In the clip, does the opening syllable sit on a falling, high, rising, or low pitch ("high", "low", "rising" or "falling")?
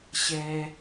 low